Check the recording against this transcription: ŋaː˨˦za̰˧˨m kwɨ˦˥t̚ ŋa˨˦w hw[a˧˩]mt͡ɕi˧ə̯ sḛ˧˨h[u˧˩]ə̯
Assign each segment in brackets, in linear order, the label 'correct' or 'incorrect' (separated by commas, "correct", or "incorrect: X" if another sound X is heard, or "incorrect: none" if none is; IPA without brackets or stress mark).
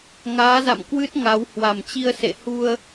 correct, incorrect: u˧